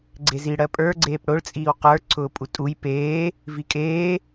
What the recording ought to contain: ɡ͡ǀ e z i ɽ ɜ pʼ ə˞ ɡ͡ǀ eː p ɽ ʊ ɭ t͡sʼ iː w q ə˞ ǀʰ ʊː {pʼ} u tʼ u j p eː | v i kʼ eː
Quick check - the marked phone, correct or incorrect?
correct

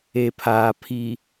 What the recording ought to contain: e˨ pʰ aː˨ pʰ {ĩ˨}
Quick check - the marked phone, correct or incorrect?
incorrect: i˨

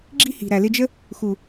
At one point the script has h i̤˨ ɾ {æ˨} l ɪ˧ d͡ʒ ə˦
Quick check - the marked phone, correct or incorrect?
correct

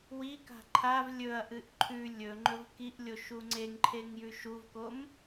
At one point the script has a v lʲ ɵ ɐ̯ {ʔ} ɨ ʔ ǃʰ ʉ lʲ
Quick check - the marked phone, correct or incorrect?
correct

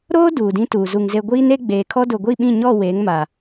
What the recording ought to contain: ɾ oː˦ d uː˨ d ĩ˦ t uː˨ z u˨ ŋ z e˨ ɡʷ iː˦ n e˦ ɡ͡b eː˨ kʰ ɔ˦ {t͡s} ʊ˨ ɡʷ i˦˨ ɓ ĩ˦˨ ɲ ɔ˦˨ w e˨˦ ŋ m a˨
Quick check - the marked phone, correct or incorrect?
incorrect: d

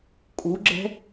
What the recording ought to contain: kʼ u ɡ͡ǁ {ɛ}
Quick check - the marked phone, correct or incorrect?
incorrect: ɛ̤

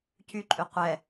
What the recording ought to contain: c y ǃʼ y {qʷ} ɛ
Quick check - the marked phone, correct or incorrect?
correct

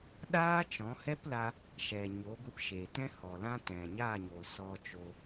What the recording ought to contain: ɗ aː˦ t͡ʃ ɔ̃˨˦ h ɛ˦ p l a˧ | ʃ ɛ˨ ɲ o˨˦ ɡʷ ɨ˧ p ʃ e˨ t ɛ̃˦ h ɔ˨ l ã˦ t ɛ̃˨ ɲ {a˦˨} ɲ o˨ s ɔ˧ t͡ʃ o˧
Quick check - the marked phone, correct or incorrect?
correct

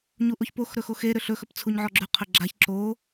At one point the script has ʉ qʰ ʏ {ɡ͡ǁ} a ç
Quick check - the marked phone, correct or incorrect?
correct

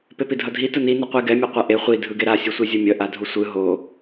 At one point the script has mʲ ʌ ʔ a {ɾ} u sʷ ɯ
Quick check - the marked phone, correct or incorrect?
incorrect: dʱ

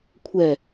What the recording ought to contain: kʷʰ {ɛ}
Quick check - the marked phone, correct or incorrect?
correct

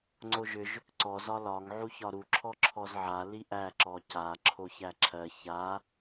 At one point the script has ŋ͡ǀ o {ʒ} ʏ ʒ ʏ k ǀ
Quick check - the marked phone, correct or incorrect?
correct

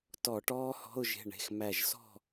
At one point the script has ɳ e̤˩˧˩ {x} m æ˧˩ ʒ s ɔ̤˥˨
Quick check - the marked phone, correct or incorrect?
correct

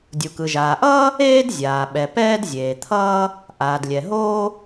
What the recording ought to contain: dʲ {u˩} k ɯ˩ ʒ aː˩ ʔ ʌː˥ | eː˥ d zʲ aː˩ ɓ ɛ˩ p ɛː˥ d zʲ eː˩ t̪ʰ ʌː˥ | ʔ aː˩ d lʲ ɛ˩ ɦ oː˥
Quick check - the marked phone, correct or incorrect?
correct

